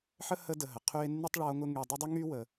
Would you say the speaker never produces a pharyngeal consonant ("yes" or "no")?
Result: no